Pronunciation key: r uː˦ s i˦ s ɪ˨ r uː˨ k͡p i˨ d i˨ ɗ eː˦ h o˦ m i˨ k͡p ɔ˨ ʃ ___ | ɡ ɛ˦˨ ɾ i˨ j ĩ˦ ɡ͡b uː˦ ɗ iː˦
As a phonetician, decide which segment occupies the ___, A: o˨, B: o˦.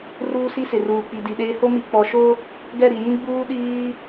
B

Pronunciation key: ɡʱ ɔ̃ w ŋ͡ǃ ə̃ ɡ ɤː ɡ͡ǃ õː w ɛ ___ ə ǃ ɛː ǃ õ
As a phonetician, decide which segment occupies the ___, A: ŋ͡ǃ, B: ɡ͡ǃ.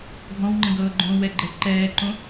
B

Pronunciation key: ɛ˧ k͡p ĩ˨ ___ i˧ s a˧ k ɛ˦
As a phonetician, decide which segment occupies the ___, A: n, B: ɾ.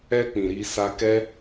B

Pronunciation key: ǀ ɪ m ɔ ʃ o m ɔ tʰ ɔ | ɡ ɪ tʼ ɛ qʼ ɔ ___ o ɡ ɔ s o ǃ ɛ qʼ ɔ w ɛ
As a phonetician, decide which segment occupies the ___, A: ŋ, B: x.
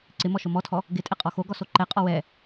B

